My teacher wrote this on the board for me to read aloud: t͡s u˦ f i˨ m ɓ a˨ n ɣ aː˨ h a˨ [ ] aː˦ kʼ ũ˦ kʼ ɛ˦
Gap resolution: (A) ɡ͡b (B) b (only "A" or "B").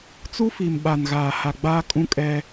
A